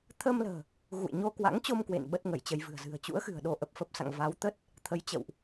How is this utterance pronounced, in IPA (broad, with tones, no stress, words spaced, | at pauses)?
t̪ʰəː˧mlə̤ː˨˩ | ɣṵ˧˨jɲo˧kwa̰˧˥ŋt͡ɕo˧m kwḛ˧˨n ɓə˦˥t̚ ŋə˧˩jt͡ɕə˧j vɨ̤˨˩ə̯zɨ̤˨˩ə̯ t͡ɕṵ˧˥ə̯xɨ̤˨˩ə̯ ɗo˧ ʔə˨˩p̚fə˦˥p̚sa̰˧˨ŋ va˨˦wt̪ə˦˥t̚ | t̪ʰə˨˦jt͡ɕə̰˧˨wʔ